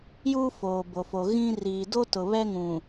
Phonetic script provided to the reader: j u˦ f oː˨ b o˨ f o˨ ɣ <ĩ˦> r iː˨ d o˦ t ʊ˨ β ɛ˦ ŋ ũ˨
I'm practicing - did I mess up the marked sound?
no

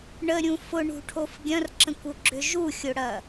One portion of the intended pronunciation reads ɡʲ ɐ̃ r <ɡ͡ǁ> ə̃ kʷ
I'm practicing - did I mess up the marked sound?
yes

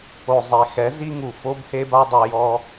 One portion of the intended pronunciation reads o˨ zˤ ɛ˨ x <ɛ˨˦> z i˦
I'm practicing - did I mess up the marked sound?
no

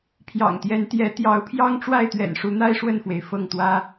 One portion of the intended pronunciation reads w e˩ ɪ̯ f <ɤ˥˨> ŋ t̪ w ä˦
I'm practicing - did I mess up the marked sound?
no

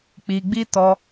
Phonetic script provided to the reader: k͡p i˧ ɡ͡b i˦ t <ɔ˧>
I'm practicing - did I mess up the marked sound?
no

